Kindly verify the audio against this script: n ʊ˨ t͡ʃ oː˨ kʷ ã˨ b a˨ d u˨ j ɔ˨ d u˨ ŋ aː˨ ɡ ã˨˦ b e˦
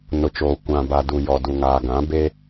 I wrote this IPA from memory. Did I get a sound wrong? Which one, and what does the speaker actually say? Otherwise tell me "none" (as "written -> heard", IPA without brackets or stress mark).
none